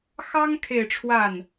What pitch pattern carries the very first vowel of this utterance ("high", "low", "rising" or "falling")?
high